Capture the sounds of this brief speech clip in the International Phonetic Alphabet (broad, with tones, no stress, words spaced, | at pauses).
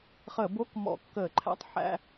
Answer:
χəː˧˩˧bo˧˥˧k mɔ̰˧˩˧kːəː˧˩˧ǃʰæ̰˧˥˧tˤ ħæ̰˧˥˧